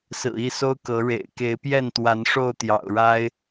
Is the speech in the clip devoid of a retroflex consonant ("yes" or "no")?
no